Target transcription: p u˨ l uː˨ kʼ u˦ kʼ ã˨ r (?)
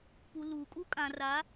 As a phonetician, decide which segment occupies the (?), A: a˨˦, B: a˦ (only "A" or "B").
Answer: A